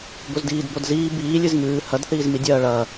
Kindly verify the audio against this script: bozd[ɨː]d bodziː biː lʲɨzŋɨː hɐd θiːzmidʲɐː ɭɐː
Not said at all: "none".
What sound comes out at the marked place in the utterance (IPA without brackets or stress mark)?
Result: iː